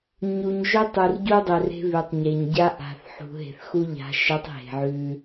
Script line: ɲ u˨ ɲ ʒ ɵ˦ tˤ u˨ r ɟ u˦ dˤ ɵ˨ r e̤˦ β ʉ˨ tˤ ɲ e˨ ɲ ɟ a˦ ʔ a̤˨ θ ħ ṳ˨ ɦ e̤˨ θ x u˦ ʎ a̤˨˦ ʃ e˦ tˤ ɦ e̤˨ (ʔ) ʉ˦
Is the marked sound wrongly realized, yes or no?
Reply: yes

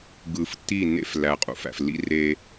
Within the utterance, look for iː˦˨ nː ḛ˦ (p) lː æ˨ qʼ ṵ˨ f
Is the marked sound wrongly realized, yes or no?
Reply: yes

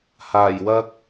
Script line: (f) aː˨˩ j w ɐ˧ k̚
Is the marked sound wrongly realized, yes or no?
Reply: yes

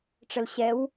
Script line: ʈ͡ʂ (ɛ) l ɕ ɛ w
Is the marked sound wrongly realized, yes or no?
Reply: yes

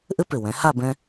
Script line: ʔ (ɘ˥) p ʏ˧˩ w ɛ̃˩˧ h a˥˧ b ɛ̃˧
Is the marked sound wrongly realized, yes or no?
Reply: no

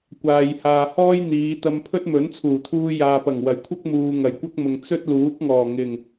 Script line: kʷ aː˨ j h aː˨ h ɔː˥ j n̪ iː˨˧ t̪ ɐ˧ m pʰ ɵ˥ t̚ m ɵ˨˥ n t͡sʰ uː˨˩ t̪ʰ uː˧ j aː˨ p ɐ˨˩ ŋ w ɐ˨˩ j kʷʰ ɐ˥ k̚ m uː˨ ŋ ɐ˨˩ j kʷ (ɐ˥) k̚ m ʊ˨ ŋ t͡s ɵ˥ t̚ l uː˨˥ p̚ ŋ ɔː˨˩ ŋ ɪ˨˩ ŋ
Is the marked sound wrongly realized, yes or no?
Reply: no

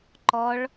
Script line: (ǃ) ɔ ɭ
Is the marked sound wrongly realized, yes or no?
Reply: no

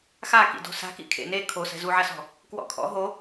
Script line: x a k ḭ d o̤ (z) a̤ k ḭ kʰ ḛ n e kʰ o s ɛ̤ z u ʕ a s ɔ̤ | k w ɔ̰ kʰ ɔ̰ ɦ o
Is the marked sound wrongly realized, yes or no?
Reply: yes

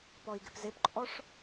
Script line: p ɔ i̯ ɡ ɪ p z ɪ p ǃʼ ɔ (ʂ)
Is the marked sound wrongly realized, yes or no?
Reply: no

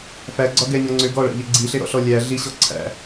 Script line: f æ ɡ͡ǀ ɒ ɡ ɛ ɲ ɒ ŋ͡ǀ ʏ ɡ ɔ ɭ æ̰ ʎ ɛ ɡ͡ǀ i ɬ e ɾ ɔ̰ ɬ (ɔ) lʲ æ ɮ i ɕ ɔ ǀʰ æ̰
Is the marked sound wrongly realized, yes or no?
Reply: no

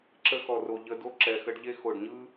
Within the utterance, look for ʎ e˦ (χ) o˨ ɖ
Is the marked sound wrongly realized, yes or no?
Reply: yes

